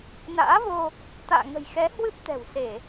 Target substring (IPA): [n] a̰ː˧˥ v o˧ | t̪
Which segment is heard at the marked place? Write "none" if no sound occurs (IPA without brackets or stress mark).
n